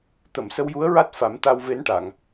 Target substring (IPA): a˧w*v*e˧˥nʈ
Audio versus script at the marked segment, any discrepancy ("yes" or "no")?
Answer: no